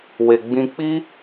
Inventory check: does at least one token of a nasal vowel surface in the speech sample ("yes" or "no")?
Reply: yes